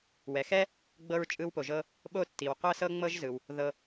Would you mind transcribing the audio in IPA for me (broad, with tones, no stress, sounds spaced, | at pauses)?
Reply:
w ɛ˩ x ɛ˦ | ɡ͡b ɤ˦ ɹ t͡ʃʼ ɯ˦ w p o˨ ʒ ɤ˦ | ɓ o˥ tː i˨ w qʷ ɤ˥ s ɤ˥ ŋ͡m ɤ˥ ʒ z ɯ˩ w | ð ɤ˨